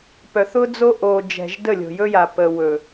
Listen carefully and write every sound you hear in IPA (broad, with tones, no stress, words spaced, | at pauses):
pœ˨θʊ˦d͡zo˦ ʔo˨d͡ʒɛ̤˨ʒ də˦˨lʲo̤˨jɵ˦ja˨ pə˨ wɵ˨